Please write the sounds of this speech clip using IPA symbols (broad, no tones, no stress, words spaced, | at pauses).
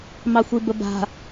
mɑxʷibəba̤